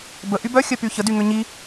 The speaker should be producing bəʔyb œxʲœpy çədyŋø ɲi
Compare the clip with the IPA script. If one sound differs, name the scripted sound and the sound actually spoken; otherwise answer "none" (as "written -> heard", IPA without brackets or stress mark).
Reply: none